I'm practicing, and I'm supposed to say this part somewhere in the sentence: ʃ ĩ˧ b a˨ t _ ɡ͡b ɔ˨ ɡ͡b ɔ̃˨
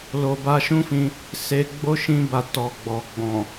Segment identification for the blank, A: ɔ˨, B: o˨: A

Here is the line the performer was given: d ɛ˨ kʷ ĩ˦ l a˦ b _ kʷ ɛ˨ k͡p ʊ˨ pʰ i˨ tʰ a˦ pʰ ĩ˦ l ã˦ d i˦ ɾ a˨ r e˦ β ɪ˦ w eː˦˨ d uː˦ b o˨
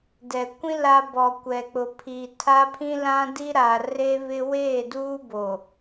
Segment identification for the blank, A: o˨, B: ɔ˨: B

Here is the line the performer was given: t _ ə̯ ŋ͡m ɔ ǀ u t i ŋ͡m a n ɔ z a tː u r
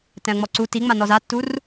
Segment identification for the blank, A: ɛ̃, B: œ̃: A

